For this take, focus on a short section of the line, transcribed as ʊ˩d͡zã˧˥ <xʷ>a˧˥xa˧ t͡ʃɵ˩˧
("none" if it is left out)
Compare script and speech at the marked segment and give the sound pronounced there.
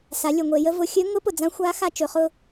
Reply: xʷ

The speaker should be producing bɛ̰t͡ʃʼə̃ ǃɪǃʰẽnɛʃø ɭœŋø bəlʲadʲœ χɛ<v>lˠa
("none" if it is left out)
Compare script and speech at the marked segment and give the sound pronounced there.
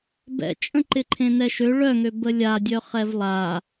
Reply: v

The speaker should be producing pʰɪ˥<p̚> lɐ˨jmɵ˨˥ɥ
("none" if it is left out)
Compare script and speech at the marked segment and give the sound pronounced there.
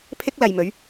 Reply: k̚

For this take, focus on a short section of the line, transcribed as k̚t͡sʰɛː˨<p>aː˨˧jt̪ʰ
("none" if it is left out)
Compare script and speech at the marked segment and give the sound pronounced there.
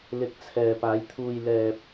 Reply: p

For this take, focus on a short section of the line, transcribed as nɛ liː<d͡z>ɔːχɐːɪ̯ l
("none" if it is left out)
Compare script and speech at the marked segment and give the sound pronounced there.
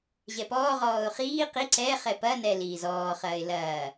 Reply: z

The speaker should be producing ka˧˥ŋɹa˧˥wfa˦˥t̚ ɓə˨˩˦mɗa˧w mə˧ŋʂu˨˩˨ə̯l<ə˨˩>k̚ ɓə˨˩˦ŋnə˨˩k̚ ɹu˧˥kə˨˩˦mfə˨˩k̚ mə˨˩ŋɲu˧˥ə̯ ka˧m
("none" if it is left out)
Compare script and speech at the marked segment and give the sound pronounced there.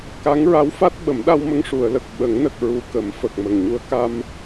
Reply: ə˨˩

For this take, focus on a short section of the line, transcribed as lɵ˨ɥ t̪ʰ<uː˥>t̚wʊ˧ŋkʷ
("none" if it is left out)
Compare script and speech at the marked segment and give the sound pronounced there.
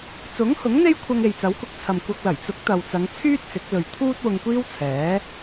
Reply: uː˥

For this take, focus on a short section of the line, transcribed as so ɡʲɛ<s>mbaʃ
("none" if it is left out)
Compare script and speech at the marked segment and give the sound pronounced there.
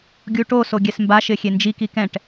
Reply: s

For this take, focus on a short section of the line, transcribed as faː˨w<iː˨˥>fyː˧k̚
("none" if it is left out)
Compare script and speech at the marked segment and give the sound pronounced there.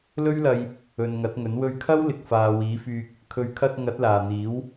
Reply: iː˨˥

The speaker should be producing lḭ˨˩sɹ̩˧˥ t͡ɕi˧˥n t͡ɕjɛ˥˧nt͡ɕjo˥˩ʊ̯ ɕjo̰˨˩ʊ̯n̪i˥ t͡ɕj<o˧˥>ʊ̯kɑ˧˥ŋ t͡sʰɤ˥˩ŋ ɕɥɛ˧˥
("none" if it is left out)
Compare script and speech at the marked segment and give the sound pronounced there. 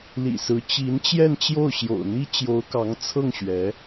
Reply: o˧˥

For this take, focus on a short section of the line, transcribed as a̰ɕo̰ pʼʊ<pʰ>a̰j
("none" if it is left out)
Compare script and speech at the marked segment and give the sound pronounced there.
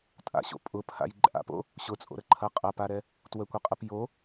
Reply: pʰ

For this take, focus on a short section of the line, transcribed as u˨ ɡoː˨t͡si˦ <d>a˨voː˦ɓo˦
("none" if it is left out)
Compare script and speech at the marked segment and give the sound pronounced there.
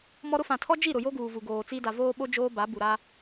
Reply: d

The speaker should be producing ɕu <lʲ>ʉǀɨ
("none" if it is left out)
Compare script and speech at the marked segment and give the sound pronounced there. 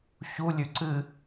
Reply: lʲ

